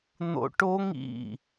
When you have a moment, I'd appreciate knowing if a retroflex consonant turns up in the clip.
yes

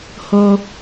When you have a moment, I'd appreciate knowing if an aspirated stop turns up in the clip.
no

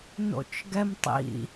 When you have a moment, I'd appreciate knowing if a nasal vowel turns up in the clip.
no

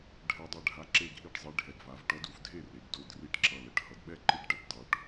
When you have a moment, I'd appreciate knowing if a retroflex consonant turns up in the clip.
yes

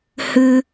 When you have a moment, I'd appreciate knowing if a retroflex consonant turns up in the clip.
no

